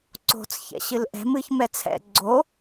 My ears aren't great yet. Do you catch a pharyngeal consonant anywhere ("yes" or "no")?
no